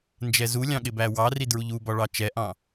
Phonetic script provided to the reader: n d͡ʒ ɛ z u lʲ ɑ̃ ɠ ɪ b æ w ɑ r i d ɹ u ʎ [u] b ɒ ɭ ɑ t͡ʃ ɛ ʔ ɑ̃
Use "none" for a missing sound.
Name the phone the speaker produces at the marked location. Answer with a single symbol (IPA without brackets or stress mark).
u